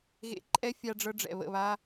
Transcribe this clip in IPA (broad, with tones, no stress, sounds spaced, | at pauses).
ɣ ḛ˧ ǃʼ ɛ˦ fʲ a˧ ɖ͡ʐ ɤ˧ ɖ͡ʐ ɛ̰˨ β ə̰˦˨ β a˦